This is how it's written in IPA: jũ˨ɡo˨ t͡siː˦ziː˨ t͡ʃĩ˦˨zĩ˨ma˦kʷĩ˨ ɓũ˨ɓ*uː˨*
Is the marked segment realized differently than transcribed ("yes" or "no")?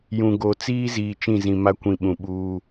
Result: yes